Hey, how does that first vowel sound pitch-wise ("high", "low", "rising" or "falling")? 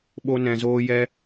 high